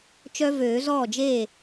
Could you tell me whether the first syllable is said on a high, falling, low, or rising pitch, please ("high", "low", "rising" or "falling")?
high